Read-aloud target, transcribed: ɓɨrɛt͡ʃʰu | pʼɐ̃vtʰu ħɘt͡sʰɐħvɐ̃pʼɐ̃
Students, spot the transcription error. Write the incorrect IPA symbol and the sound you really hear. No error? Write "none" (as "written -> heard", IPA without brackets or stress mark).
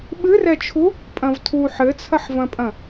none